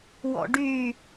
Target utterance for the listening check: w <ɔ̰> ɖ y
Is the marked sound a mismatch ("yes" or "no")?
no